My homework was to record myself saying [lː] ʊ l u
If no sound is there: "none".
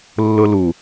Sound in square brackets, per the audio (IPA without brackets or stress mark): lː